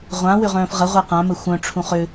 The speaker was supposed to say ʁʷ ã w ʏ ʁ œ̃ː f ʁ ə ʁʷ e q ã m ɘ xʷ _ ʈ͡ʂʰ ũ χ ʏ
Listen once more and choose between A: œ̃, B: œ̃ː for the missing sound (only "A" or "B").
A